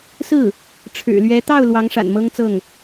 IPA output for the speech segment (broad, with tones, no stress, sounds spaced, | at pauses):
s ɹ̩˥˩ | ʈ͡ʂʰ ɻ̩˨˩ l ɥ ɛ˧˥ t̪ ɑ˥˩ ʊ̯ l w ɑ˧˥ ŋ ʂ a̰˨˩ n m ɤ˥ ŋ t͡s ɤ˥˩ ŋ